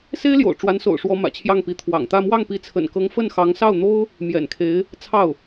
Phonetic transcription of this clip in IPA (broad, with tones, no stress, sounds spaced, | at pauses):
s e˥ ɪ̯ l j o̰˨˩ ʊ̯ ʈ͡ʂ w a˧˥ n s o̰˨˩ ʊ̯ ʂ w ɔ˧˥ m ä̰˨˩ t͡ɕʰ j ɑ˥˩ ŋ p i˧˥ t̪ʰ w ɑ̰˨˩ ŋ t̪ ä˥˧ m w ɑ˥˩ ŋ p i˧˥ t͡sʰ ə̰˨˩ n k ɤ˧˥ ŋ f ə˥˩ n x ɑ˧˥ ŋ s ɑ˥˩ ʊ̯ n̪ o˥ ʊ̯ | m j ɛ̰˨˩ n kʰ e˧˥ ɪ̯ | t͡sʰ ɑ˥˩ ʊ̯